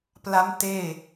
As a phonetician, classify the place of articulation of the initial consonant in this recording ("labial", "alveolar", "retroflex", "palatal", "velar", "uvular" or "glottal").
labial